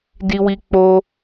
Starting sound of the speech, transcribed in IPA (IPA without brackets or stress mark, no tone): d